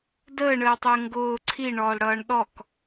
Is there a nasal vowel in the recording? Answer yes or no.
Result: no